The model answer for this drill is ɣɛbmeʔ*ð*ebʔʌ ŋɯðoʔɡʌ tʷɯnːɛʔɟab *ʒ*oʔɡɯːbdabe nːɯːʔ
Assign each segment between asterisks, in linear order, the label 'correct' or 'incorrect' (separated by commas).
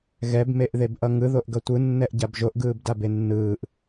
correct, correct